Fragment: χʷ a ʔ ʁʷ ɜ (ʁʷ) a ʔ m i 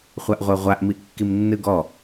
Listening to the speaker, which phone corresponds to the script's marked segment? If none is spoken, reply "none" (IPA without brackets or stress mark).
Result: ʁʷ